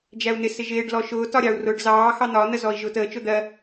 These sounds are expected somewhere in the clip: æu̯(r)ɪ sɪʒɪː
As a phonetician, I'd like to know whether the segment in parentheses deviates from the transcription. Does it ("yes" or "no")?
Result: yes